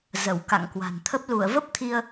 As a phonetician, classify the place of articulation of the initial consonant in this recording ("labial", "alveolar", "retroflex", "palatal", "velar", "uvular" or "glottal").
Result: alveolar